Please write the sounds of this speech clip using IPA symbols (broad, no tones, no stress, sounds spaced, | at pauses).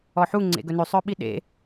ɔ ħ u ŋ͡ǀ ḛ ɡ ɵ n ʉ sˤ œ ɓ i ɗ ḛ